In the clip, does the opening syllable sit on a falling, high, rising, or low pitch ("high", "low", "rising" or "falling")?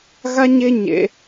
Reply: high